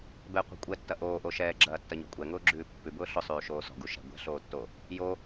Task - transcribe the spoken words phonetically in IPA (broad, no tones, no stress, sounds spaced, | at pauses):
b ɛ qʷ ɛ̤ kʷʼ ɛ tː ɐ ʔ oː ʔ o ʃ ɛː ɡ͡ǁ ɐː tː ɐ ɲ ɔ̤ kʷʼ ɛ ŋ ʊː ɡ͡ǁ ʉː pː ʉ b ʊː ɬ ʊ sˤ ʉː ʃ oː s ɔ̤ ɡ u ʃ ɛ̤ ɡʷ ɛ̤ ɬ oː tː o | j o